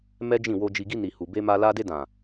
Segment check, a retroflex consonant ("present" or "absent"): absent